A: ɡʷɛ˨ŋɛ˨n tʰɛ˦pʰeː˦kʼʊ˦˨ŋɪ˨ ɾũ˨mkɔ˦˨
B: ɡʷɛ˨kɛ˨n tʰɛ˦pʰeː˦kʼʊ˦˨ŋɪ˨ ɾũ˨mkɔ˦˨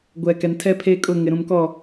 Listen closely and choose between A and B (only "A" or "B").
B